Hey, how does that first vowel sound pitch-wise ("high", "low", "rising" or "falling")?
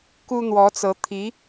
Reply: high